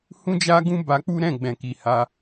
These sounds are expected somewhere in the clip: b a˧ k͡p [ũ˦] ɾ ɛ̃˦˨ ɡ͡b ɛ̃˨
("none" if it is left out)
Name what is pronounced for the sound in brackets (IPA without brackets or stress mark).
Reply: u˦